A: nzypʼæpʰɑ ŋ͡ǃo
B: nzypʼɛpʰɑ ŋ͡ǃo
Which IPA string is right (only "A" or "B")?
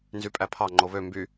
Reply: A